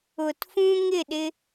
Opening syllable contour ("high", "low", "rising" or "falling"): low